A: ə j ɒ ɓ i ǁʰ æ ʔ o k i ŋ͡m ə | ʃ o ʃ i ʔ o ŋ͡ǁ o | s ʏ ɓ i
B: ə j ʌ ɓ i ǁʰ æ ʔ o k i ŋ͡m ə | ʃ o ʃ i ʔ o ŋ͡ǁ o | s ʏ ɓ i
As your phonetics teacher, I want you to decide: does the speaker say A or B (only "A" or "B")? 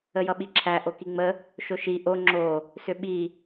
B